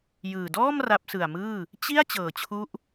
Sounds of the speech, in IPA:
j ɯː˨˩ d ɔː˥˩ m r a˦˥ p̚ s ɯ˨˩ a̯ m ɯː˥˩ | t͡ɕ i˥˩ a̯ t͡ɕ ɤː˨˩ t͡ɕʰ u˦˥ ʔ

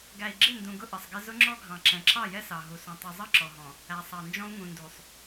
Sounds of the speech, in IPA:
ɡ æ˨ i̯ ɡ͡ǁ ɪ˦˨ n d ũ˨ ɡ ʊ˦ ʔ ə˨ sˤ ɡ ɪ˦ z ʊ˦ ŋ͡ǁ ɔ˦ ɡʱ ɑ̃˨ ǁ ɛ̃˨ ǁ ɑ˦˨ j ɛ˦ s ɑ˨ ɦ u˨ s ũ˨ tˤ u˨ zˤ ʌ˦˨ ǁ ɔ˨ ɦ ɔ̃˨ | æ˨ sˤ ɑ˨ n d͡ʒ ɔ̃˦ u̯ ŋ ũ˨ n d u˨ sˤ

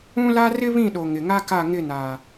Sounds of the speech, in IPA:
ũ˦ l a˦ r ɪ˦ β ĩ˦˨ ɗ o˨ ŋ ɪ˨ ŋ a˦ k a˦˨ ŋ ɪ˦˨ n a˨

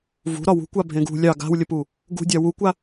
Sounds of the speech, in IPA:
v ṳ ɾ ɒ w ṳ kʷ a bʱ ẽ ɡ ṳ lʲ ɑ ɡ a̤ w lʲ ə p u | ɡ ṳ dʲ ɑ w u kʷ a

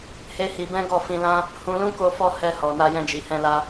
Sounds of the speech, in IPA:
h e˦ h i˧ b ɛ̃˦ ɡ ɔ˦˨ f ĩ˧ l ã˦ | h ũ˧ l ũ˦ k o˧ f ɔ˧ h ɛ˧ h ɔ˨ n a˧ j ɛ̃˧ d͡ʒ i˨ h ɛ̃˧ l a˧

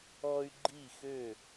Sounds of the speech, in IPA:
ɔ˦ y̯ ɡ͡ǃ i˦˨ x ø˦˨

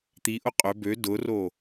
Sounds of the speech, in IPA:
t̪ i ʔ ʊ qʼ ʏ b ø d ʊ r o

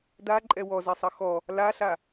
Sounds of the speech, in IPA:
d a ǃʼ ɛ w ɔ z ɛ sˤ ʌ x ɔ | l a ɬ a

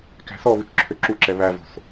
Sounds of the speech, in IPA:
k æ̤ θ ɔ β ʉ t͡ʃ ǁʰ ø ǁ u ǁ ɛ β æ v o̤ θ

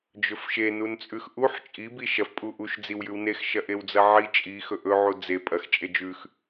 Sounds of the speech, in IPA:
d͡ʒ ɵ f ʃ e n u n t͡sʼ ʉ x ʔ u ħ t͡ʃʼ i b i ʃ ɐ f pʼ u ʔ u ʃ d͡z i w j ʉ w n e x ʃ ɐ ʔ e w d͡z ɐ ʕ i t͡ʃʼ i x ɵ ʔ ɵ ʕ u d͡z e pʼ ɐ x t͡ʃʼ e d͡ʒ ʉ x

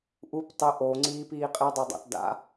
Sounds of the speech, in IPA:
ʔ u p tˤ ɪ ʔ o ŋ͡ǀ iː p iː qʼ e dˤ e dˤ a̰ t d a̰

